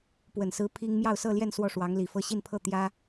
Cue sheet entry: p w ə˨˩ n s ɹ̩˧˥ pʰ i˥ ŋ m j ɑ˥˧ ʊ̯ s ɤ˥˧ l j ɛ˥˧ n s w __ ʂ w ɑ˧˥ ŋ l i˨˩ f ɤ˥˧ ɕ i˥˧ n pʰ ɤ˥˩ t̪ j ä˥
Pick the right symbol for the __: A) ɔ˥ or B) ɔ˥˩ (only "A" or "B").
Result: B